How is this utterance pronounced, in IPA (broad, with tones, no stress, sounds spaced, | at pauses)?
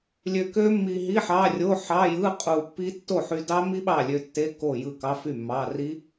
lʲ ø˧ k ø˦˥ mː i˧ ɦ i˧˥˧ ħ ɑ˧˥˧ rʲ o˧˥˧ ħ ɑ˧˥˧ j ɯ˧˥˧ qʼ u˧ pː i˦˥ tː o˥˩ ħ y˧ d ɑ˦˥ m i˦˥ ɓ ɑ˥˩ lʲ ø˧ tː e˧˥˧ k o˥˩ j ɯ˥˩ k ɑ˧˥˧ f y˥˩ mː ɑ˧˥˧ r i˦˥